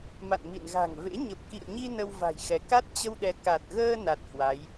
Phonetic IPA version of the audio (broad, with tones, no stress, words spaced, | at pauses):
ma̰˧˨nmḭ˧˨nɣa̤˨˩ŋvḛ˧˥ ɲə˨˩p̚kḭ˧˨ə̯ɲi˧ nə˧wva̤˨˩jxɛ˨˦ ka˦˥t̚t͡ɕə˧wɗɛ˨˦ ka˨˩t̚ɣəː˧ na˨˩t̚ hwa˨˦j